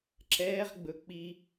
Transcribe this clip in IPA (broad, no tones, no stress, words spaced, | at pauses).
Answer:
ǁɛːʁɡ͡bɵ k͡pi